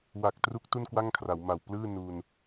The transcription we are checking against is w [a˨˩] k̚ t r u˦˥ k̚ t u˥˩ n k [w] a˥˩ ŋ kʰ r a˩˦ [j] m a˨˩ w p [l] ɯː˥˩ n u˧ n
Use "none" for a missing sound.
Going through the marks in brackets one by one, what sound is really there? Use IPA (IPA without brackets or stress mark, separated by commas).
a˨˩, w, w, l